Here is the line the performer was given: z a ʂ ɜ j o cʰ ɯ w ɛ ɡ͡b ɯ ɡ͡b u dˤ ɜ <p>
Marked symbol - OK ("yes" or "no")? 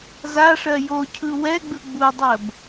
no